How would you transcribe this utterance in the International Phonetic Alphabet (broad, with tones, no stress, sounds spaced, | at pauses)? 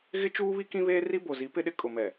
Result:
ɣ ɪ˦ t͡ʃ uː˦ β i˦ k ĩ˦ β eː˦ r i˦ b o˨ z i˨˦ p ɪ˦ ɗ ɪ˦ kʼ ʊ˨ m ɛ˨